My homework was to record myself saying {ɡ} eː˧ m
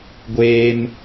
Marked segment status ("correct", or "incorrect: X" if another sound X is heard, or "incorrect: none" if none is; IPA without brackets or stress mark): incorrect: ɡʷ